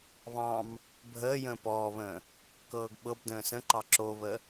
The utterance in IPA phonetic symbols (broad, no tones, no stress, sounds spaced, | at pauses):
β ɑ̃ m | bʱ əː j ə̃ː p ɔː β ə̃ː | k ɤː ɡ ɓ ɤ b d ə̃ː s ə̃ ǃ ɑ ǁ o β ə